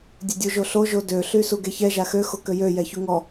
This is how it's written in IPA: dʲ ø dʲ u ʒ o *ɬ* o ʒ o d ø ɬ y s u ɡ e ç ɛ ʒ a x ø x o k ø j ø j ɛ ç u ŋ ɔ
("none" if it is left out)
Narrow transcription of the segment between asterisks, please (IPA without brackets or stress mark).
ɬ